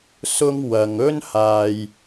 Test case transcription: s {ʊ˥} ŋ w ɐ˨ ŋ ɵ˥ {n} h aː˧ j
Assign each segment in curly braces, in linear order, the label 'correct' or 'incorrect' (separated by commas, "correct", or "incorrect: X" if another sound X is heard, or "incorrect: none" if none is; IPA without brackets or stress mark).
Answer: correct, correct